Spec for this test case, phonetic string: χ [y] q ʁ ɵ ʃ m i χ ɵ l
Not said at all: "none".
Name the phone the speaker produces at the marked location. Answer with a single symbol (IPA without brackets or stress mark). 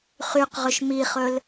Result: y